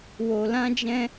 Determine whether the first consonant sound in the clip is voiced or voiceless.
voiced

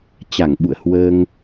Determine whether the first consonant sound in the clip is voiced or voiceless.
voiceless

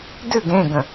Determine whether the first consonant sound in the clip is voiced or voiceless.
voiced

